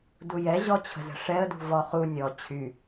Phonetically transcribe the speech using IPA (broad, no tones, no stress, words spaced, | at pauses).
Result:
dujɛ ʑɔt͡ɕʰə̤zə̤ʂɛə̯ dṳvɔ χu nʲɔ t͡ɕʰy